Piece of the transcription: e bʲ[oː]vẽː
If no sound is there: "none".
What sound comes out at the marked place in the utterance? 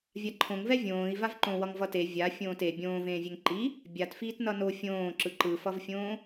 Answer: õː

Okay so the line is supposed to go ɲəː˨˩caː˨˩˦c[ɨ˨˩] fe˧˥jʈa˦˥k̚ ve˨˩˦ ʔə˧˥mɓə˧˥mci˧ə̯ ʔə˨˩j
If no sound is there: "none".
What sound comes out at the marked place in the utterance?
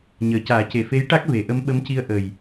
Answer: e˨˩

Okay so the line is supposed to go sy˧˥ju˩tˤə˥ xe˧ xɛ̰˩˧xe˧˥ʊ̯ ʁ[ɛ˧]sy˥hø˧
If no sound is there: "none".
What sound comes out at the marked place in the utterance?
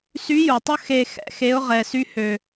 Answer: ɛ˧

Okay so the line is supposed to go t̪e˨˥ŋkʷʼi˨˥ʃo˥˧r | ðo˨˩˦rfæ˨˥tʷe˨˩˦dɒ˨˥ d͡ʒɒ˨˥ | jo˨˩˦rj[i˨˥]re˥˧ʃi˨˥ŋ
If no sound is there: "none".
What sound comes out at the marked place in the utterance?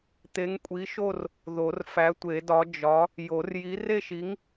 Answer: i˨˥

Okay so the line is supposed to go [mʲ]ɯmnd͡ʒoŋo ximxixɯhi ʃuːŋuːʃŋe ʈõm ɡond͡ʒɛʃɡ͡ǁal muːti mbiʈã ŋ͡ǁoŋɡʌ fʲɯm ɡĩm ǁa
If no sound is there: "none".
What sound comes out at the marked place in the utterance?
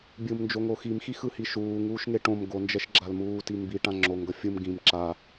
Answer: bʲ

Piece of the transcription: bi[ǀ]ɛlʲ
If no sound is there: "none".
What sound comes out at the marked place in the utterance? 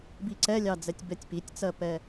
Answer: ǀ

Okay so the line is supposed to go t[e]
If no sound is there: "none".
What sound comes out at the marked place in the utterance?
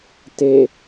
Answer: e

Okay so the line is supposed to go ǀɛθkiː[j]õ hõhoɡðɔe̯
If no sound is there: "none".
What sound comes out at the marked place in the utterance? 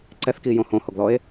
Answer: j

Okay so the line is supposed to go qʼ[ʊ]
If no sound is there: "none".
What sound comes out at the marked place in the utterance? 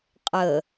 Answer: ə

